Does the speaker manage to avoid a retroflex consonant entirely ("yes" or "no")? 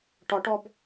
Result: no